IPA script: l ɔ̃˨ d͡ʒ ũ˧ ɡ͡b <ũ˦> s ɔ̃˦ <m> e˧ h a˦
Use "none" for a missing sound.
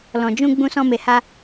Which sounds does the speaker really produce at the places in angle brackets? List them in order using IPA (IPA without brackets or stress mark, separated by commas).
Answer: ũ˦, m